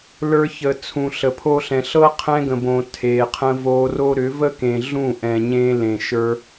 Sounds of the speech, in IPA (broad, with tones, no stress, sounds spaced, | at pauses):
l ə˞˧ ç ə˨ t͡sʰ ũ˨ ɬ ə˨ pʰ o˧ ɬ ɛ̃˨ ɬ ɤ˦ qʰ ɛ̃˧ ɡ ə̃˨ b õ˨ tʰ e˨ qʰ ə̃˧ v o˧ r o˦ ɾ ʏ˨˦ v ə˦ k ẽ˨ ɮ ũ˦˨ ʔ ɛ̃˨ ɲ ẽ˧ l ẽ˨ ʃ ə˞˧